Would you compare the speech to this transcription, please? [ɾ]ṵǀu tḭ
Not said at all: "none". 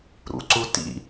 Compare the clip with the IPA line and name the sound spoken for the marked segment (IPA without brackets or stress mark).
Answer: ɾ